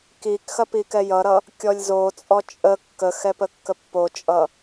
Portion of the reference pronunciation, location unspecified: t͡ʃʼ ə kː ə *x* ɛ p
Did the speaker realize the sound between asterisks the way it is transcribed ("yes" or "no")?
yes